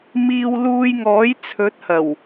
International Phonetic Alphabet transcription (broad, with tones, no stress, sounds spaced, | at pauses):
m iː˧ w l uː˧ j ŋ ɔː˨˥ j t͡sʰ ɵ˨˥ t̚ h ɐ˨˩ w